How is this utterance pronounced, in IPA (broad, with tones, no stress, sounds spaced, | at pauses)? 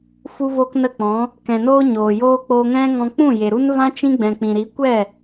f u˦ v oː˦ k n ə˦˨ k͡p ɔ̃˨˦ | k ɛ̃˨ n oː˦ ɲ oː˨ j oː˦ k͡p oː˧ ŋ ɛ̃˦ ŋ ɔ̃˧ k͡p ũ˦˨ j e˨ ɾ u˦ n v ã˦ t͡ʃ ĩ˦ ɡ͡b ɛ̃˨ k͡p ĩ˨ ɾ i˨˦ kʷ ɛ˦˨